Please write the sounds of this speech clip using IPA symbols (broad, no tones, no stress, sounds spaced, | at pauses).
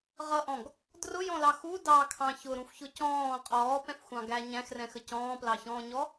ʁ ʌ ʔ ɔ̃ ɡ | d r ʊ j ɔ̃ l ɑ x u d ɑ kʰ ɑ̃ ç ʊ ɾ ũ f ç ʊ c ɔ̃ː qʼ ɔː p ɛ̃ f xʷ ɑ̃ ɡ æ ɲ æ̃ x r ɛ̃ x ə c ɔ̃ː p l ɑ ç ɔ̃ː ɲ ɔ